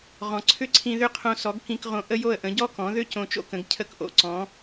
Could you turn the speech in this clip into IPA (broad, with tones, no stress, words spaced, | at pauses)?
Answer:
ʁɔ̃˩ǀʰʏ˥˩ǀʰĩ˧ ðʏ˥˩qʰõ˧sɔ˩˥ɡ kĩ˧kʁõ˧ ʔə˥jo˥˩ə̯ʔə̃˩˥ ɟɔ˥kɔ̃˩˥ ðʏ˥ cõ˧t͡ʃo̰˥kə̃˩˥ɡ cʰə˥˩kʔo̰˧ ǀɔ̃˩˥